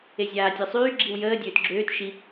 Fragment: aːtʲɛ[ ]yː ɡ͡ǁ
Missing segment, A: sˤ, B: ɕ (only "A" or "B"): A